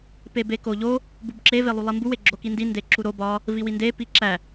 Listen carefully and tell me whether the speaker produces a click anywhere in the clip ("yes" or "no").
yes